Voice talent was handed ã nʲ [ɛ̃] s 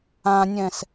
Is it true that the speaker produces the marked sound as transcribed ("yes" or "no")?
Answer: yes